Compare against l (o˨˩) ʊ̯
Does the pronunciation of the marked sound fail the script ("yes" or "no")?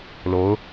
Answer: yes